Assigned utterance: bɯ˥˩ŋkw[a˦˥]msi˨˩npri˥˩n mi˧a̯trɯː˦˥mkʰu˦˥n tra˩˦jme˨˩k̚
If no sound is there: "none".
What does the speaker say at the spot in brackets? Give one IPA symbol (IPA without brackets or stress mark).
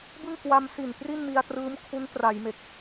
a˧